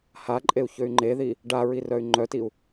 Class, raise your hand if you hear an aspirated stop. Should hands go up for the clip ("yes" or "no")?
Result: no